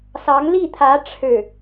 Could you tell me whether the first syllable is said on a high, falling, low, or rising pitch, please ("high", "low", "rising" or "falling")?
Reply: rising